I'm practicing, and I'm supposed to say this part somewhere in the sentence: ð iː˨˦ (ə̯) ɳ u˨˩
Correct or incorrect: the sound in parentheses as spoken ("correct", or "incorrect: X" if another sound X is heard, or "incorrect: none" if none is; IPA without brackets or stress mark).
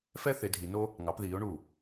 incorrect: ʊ̯